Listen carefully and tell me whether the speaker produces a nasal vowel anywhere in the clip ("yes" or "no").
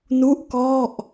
no